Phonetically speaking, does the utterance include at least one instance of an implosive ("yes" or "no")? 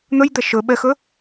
yes